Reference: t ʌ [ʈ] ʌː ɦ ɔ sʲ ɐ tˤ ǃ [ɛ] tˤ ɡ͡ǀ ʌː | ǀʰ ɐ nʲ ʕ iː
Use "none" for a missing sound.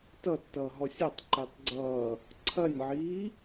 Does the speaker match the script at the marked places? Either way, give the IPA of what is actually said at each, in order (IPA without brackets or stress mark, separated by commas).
tː, e